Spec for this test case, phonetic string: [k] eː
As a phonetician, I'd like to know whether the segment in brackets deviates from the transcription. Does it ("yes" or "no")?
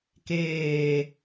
no